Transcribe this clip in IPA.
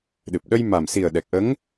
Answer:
ɗ ɨ˨˩ p̚ ɗ ə˧ j m a˨˩ m s i˨˩ ə̯ ɗ ɛ˨˩ k̚ ʔ ə˧˥ ŋ

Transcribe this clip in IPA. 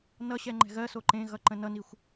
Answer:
n ʌ ɕ ɛ ŋ͡ǃ ɛ̤ ɣ ɜ s o ǃ ẽ ɣ ʌ ǃ ə̃ n ʌ n i xʷ

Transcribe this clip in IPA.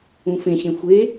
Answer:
ũ f ẽ ɕ ẽ xʷ e

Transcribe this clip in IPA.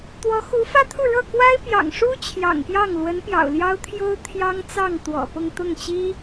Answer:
t̪ w ɔ˧˥ x u˧˥ f ä˥ t̪ʰ u˥˧ ɻ ɤ˥˩ k w a˥ ɪ̯ p j ɑ̰˨˩ ŋ ʂ u˥ t͡ɕʰ j ɑ̰˨˩ ŋ p j ɑ˥˩ ŋ l w ə˧˥ n p j ɑ̰˨˩ ʊ̯ l j ɑ˥ ʊ̯ t̪ʰ j o˥ ʊ̯ t̪ʰ j ɑ˥ ŋ t͡s ɑ˥˩ ŋ t̪ w ɔ̰˨˩ p ʊ˥˧ ŋ t̪ ʊ˥˩ ŋ t͡ɕ i˥

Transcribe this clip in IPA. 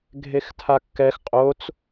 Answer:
ɡʱ e x tʰ a kː ɛ x qʼ o t͡s

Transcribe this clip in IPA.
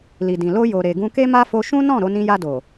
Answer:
l i˨ d ĩ˨ l o˧ j o˨ ɾ e˨ ɡ ũ˧ k e˦ m a˦ f o˧ ʃ ũ˦ n ɔ̃˦˨ ɾ o˨˦ n ĩ˧ j a˧ d o˨

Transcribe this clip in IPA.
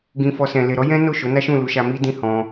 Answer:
ɡ ĩ˧ f ɔ˧ s ɛ̃˨ l e˨ ɾ ɔ˨˦ j ɛ̃˦ n o˦˨ ʃ o˨˦ n a˦ ʃ ũ˦˨ l u˨˦ ʃ a˧ m i˦ d ĩ˦˨ h ɔ̃˧

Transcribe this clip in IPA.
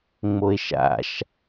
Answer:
ŋ͡m o e̯ ʃ a̰ ʃ

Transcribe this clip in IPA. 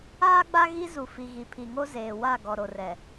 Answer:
aː˦ ɡ͡b a˦ ɣ i˦ z u˨ f i˨ ɣ i˨ pʰ i˨ ŋ o˦ z eː˨ w a˦˨ ɡ ɔ˨ ɾ o˨ r ɛ˨

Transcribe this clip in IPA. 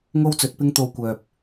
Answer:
ŋ o˥ w t͡s ɵ˨˥ t̚ p ɪ˥ ŋ t̪ o˧ w kʷ œː˨ p̚

